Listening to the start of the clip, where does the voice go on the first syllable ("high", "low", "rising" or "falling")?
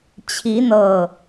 rising